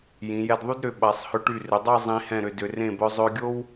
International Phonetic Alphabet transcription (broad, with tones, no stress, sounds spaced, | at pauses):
j ĩ˩˧ j ɛ˧ d ðˤ y˥ d ɾ ʏ˩˧ ɓ a˩˧ sˤ h ʏ˧ ʈ y˧˩ r ʏ˩˧ dˤ a˥˧ zˤ ĩ˧ h ɛ̃˧˩ ɾ ʏ˧˩ d ʏ˩˧ r ẽ˧˩ b œ˧ zˤ ø˧ ɡʲ o˥ w